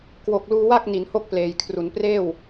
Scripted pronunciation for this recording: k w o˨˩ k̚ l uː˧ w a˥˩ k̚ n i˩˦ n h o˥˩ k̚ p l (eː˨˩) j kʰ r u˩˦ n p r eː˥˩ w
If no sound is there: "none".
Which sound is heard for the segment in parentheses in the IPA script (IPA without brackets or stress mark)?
eː˨˩